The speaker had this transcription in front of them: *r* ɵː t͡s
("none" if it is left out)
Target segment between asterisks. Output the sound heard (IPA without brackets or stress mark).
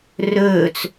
r